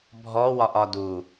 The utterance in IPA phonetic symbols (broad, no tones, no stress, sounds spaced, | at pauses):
bʱ ɔ w ɒ ʔ ɒ d u